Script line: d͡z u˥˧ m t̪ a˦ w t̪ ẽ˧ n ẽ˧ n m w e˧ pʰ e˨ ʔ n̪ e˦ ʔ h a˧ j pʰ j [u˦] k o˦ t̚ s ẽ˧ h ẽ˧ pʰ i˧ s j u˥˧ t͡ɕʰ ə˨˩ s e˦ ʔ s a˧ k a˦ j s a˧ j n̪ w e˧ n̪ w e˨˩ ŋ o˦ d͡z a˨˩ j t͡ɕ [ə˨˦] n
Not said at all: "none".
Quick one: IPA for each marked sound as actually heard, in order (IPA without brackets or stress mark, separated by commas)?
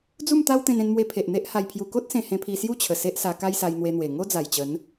u˧, ə˨˦